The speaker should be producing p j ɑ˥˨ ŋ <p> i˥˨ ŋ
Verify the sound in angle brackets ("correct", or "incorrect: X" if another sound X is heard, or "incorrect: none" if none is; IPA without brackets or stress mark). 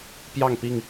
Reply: correct